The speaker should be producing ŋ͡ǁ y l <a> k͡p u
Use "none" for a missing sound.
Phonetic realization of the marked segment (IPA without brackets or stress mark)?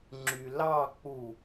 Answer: ɑ